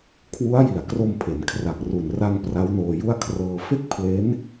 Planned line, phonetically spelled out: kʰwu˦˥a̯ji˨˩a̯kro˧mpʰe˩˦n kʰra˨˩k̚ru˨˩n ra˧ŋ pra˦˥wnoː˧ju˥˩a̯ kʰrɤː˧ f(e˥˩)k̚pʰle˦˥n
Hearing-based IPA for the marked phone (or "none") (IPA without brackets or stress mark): e˥˩